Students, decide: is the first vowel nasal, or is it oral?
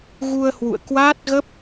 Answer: oral